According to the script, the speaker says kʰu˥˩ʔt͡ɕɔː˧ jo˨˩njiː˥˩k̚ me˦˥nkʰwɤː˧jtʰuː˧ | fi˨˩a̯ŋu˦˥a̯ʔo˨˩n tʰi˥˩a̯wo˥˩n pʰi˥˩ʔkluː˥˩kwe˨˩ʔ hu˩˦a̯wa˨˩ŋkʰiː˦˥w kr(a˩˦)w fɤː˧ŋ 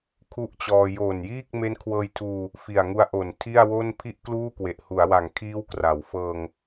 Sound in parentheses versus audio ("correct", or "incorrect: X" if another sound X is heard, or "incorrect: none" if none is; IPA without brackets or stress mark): correct